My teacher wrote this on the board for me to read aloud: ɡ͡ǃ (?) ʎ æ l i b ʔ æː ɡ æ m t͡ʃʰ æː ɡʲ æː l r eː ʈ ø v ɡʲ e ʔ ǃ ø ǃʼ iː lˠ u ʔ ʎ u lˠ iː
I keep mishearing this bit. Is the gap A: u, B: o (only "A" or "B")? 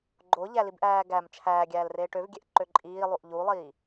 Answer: B